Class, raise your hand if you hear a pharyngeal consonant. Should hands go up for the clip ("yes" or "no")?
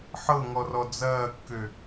yes